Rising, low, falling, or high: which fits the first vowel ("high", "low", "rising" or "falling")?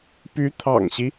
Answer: rising